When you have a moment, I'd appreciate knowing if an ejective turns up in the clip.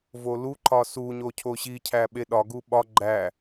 no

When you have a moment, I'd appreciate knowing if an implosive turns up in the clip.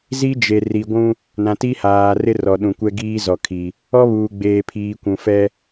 yes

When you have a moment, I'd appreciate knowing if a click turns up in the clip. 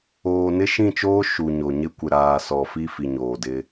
no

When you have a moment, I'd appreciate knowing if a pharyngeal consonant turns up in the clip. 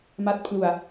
no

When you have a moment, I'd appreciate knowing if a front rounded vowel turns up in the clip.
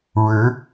no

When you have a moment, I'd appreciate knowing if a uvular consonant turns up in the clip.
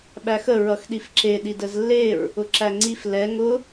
no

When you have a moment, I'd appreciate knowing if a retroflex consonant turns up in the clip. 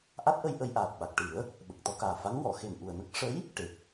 yes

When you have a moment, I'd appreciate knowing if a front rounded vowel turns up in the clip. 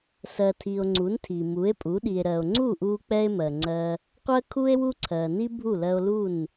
no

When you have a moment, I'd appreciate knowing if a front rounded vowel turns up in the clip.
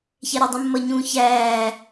no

